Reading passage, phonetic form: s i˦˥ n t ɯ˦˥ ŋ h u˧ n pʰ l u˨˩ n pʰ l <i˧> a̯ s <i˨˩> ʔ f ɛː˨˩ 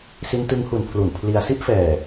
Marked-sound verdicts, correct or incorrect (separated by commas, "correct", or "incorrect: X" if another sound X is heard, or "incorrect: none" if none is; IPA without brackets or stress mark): correct, incorrect: i˦˥